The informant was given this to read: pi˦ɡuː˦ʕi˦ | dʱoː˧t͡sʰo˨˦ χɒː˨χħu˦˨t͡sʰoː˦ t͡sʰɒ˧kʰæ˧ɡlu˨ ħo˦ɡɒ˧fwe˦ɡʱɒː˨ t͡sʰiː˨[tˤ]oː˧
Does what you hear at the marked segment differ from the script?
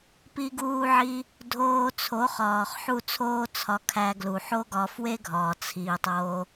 no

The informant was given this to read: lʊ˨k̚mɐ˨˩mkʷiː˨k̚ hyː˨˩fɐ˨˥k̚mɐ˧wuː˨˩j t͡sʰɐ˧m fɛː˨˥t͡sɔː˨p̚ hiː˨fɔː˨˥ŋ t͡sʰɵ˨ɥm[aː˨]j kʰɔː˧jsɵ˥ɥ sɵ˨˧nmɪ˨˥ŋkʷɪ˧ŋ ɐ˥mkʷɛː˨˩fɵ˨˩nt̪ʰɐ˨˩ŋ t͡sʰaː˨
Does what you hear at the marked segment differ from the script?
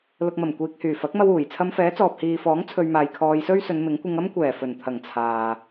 no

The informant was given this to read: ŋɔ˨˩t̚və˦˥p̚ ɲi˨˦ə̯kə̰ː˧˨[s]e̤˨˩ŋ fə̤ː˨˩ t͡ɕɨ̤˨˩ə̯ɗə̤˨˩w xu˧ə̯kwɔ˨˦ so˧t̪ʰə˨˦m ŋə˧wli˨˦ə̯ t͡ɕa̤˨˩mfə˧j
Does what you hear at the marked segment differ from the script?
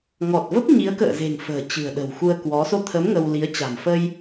yes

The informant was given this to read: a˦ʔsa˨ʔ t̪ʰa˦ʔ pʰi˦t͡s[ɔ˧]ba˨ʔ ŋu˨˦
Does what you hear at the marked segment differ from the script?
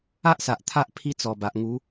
yes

